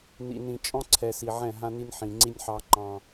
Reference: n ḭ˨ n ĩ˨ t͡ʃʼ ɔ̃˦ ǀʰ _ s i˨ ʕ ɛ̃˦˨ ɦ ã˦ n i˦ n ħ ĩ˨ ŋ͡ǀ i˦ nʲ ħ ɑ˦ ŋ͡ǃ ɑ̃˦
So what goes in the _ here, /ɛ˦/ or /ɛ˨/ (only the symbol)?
ɛ˨